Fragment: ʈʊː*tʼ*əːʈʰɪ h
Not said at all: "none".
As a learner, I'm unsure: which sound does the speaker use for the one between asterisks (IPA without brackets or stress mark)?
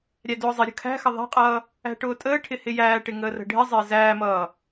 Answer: tʼ